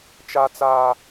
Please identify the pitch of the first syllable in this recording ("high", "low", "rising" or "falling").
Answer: high